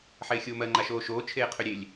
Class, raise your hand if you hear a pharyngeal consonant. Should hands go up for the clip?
yes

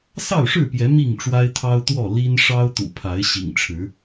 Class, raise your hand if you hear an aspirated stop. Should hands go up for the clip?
yes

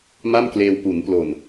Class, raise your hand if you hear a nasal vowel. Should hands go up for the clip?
no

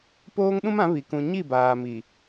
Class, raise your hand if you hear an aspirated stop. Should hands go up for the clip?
no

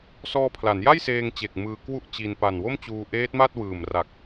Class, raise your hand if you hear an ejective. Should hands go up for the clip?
no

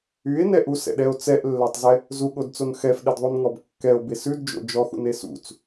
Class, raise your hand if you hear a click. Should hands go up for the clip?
no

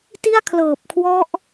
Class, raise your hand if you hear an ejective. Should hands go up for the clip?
no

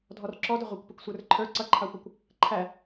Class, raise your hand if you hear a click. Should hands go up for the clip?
yes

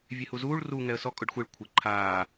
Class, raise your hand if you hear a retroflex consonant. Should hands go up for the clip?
yes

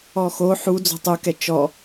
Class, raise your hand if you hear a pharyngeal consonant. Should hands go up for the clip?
yes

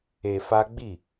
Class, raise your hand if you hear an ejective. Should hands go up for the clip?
no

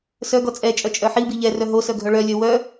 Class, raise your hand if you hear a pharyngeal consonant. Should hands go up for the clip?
yes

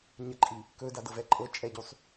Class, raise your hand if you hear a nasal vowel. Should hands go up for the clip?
no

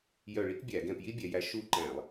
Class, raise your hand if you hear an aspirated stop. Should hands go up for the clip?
no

